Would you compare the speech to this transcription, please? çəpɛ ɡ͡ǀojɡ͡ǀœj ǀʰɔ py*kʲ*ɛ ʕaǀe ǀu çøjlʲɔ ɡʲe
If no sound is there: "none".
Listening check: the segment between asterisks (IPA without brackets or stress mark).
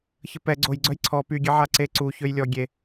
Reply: ɡʲ